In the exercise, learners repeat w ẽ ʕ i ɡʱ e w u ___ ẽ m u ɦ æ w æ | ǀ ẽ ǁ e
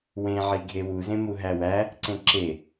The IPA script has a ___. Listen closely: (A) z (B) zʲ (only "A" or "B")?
A